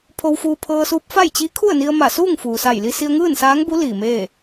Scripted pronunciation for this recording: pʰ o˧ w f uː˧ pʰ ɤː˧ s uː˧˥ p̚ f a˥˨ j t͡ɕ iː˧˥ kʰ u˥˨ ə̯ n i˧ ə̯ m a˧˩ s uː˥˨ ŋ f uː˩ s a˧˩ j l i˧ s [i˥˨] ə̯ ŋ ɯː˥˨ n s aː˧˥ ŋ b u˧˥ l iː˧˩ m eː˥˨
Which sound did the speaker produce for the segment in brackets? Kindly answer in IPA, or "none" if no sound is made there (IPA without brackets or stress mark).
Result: i˧